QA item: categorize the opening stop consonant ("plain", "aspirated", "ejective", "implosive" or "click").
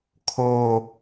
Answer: aspirated